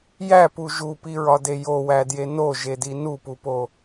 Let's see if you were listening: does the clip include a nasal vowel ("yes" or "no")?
no